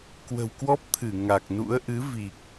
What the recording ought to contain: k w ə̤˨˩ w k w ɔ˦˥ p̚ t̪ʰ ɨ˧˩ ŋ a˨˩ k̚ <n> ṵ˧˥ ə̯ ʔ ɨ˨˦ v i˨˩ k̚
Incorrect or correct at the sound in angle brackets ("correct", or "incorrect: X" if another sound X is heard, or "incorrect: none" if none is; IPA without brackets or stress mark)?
correct